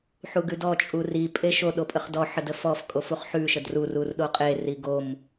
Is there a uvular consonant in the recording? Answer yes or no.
yes